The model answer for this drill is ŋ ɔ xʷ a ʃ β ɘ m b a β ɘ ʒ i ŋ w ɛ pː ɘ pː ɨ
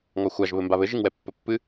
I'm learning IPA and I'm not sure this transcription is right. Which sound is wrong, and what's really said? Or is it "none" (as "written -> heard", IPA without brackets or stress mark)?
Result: ʃ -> ʒ